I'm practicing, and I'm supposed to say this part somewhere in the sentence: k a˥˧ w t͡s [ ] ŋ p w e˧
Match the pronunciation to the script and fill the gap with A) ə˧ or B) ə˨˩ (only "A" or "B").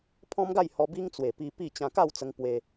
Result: A